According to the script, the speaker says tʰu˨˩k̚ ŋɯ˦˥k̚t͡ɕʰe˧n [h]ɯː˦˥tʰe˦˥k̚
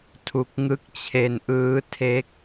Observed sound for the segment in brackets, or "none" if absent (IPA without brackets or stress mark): ʔ